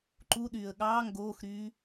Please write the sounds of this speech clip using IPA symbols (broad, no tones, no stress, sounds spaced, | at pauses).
ǃ u ɗ yː ə̯ ɠ ɑː ŋ ɡ oː x ɾ yː